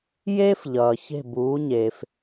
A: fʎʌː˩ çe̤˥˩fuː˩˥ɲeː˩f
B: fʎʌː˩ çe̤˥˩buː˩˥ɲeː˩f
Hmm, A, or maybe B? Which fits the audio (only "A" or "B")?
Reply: B